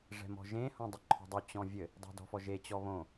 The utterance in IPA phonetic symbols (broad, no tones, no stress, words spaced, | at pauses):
ʐɛ̤mɔ̤ʒẽ hõdˤəǃʰɔ̤dˤy t͡ɕɔ̃vʲɘ | dˤe̤dɔ̤fɔʒe t͡ɕɔβõ